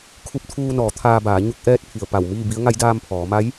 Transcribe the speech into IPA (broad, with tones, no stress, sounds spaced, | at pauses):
kʰ u˧ p̚ t̪ʰ uː˧ n ɔː˩˧ t̪ʰ aː˧ b aː˩˧ ɲ u˧˥ k̚ ʔ ɛː˧˥ t̚ pʰ i˩ ə̯ p a˧˩ w m iː˥˨ b i˧˥ ə̯ ŋ a˧˥ j d aː˧ m pʰ ɔː˩˧ m a˧˥ j